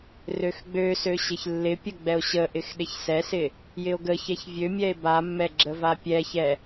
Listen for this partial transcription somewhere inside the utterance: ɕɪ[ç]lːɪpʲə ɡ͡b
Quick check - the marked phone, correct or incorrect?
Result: correct